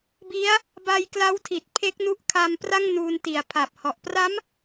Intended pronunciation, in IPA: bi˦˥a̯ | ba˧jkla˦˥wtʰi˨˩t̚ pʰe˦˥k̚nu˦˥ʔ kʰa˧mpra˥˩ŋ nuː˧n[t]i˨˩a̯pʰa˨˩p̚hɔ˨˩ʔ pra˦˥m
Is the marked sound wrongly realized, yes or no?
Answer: no